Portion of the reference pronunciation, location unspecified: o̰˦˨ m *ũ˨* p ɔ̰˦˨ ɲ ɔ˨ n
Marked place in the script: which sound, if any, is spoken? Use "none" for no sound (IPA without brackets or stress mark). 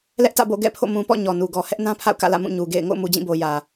ũ˨